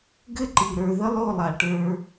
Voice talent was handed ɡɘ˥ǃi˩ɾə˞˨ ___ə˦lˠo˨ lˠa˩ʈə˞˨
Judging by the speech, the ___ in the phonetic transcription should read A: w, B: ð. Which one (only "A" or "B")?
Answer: B